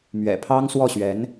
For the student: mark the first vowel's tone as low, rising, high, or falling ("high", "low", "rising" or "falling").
low